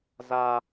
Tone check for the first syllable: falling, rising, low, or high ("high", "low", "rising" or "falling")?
high